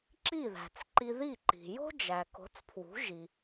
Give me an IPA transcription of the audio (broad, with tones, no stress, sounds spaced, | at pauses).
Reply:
ǁ i˥˩ ð æ̤˩ t͡s ǃ i˧ ð i˥˩ ǃ i̤˩ j o̤˥ d͡ʒ æ˩ k o̤˩˥ t͡s pʰ w ṳ˩˥ ʒ i˩